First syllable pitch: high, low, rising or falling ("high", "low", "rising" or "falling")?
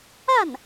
falling